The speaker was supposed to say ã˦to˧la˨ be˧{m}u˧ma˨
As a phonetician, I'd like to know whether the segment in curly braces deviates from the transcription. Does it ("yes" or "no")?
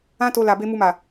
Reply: no